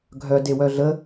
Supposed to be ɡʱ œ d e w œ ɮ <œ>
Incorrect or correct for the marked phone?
incorrect: ə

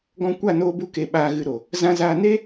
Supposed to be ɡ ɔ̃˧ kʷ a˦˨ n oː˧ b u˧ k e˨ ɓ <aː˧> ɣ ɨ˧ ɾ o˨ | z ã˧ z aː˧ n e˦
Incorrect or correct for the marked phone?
correct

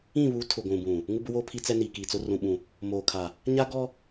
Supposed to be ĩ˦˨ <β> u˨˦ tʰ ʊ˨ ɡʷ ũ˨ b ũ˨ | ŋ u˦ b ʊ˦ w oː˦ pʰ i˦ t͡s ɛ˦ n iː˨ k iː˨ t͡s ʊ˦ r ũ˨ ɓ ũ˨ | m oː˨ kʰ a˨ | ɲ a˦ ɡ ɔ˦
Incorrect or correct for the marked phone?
correct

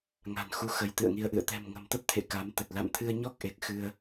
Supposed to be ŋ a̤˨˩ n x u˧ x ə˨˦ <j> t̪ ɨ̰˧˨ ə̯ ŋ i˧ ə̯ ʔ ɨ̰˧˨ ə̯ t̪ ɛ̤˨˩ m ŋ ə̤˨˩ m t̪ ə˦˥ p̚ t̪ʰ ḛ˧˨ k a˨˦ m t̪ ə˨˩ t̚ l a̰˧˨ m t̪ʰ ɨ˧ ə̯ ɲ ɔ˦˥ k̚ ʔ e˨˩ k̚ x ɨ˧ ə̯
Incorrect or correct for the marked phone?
correct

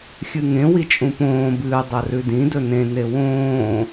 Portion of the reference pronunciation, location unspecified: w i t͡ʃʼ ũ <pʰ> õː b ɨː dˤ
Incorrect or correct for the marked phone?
incorrect: p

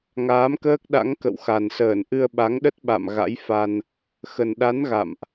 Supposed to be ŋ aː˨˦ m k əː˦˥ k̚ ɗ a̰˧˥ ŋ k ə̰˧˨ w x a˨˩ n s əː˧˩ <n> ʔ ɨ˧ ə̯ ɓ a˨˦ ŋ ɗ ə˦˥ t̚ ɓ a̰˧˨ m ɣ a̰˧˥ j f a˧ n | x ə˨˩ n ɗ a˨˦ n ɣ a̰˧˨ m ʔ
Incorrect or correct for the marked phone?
correct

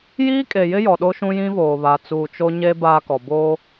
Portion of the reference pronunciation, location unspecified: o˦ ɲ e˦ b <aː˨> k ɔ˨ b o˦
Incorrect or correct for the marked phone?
incorrect: aː˦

